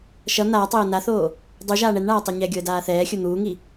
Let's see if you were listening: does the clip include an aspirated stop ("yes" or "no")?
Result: no